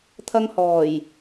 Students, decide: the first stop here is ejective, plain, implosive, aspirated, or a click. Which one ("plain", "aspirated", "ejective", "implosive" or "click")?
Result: aspirated